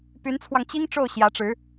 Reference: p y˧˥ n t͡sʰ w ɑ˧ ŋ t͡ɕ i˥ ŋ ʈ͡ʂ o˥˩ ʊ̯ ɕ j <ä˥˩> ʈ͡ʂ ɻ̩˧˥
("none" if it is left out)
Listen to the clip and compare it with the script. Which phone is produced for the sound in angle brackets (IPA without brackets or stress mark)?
ä˧˥